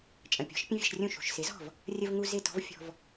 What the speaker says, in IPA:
t͡ʃʼə̃˩pʲɔ̤˩˥ʃ pʲə̃˥vʲə̤˧ʃrʲũ˥˩ ʃṳ˩ʃ sɪ˩˥zɔ̤˥˩v | rʲə˧vŋu˧ zɪ˥˩tɔ̤˥v fʲɔ̤˧v

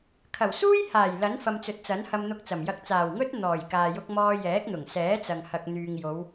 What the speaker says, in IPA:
kʰɐ˨˩wsuː˥jhaː˨˩j lɐ˨˥nfɐ˨mt͡sɵ˨t̚t͡sɐ˨˥n hɐ˧mn̪ʊ˧k̚t͡sɐ˨˩mjɐ˧k̚ t͡saː˨˩wŋɵ˥t̚ n̪ɔː˨˩jkaː˨ jʊ˧k̚mɔː˧jɛː˨˥k̚n̪ʊ˨˩ŋ sɛː˨˥t͡sɐ˨ŋ hɐ˨k̚n̪yː˨ŋjo˨˧w

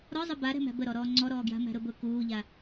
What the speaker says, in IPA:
ɾɔzˤə baɾɛ̤mæ̤ bəɾɔ ɾɔːŋ͡ǀɔɾɔːɡja̤ mæ̤ɾʊbʊ kuːʎa

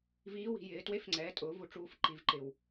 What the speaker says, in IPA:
viː˧˥wi̤˩˧jɪː˩˧ twe˧˥fŋ͡ǀɛː˩˧tʼʊː˩˧ vu˧ʈ͡ʂuː˧f ǃi˩˧vǃɪ˩w

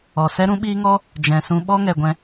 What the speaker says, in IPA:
ɔ˨sɛ˦ ɾũ˦ɓiː˦ ŋɔ˦ | d͡ʒɛ̃˨sũ˧ ɓɔ˦ŋɛ˨ɡʷɛ̃˧

